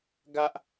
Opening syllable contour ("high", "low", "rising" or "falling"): high